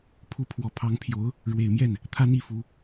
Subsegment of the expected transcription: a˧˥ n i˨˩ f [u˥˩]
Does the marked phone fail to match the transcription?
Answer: yes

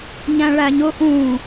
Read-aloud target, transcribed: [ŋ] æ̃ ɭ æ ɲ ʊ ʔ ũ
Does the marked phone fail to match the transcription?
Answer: yes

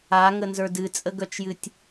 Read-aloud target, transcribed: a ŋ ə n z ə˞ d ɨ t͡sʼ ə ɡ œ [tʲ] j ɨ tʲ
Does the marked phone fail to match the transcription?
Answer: yes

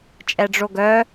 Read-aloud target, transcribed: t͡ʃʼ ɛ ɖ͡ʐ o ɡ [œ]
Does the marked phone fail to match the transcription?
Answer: no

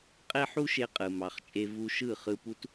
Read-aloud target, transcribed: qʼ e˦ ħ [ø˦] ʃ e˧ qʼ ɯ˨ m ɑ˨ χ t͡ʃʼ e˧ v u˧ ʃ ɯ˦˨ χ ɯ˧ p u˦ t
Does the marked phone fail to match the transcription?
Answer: yes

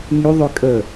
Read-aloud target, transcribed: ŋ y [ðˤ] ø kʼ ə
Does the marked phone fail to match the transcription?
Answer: no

